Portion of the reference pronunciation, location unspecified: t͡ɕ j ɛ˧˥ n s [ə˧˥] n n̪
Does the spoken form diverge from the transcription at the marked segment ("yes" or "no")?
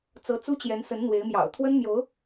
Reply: no